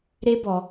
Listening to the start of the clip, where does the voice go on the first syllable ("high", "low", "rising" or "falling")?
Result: high